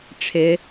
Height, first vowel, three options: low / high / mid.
high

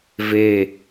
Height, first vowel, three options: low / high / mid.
mid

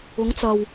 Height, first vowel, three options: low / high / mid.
high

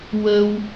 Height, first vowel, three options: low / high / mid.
mid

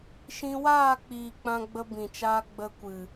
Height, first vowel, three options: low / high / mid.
high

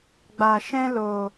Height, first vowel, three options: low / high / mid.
low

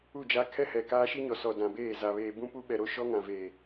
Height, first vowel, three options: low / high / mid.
high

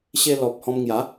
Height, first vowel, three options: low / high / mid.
mid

